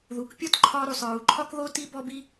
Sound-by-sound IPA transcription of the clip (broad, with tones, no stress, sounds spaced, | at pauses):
ð u˩ k pʲ ɔ˥ t ǃʰ ɒ˧ ɾ u˩ sˤ ɹ u˩ ǃʰ ɒ˥ k ð o˥ t i˥ b ɔ˥ b i˥